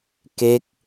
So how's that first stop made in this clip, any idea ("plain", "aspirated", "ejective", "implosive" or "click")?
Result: plain